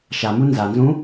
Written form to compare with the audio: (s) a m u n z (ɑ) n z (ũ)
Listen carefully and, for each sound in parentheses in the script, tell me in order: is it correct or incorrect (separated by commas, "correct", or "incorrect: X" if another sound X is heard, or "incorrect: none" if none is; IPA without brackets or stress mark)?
incorrect: ʃ, incorrect: a, correct